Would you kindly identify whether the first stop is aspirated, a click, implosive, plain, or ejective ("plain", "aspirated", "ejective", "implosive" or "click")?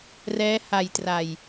plain